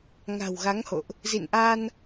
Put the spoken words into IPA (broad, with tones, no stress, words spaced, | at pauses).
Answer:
ŋa̤˨˩wɣa˨˦ŋho̰˧˨ʔ | zḭ˧˨nʔa˧n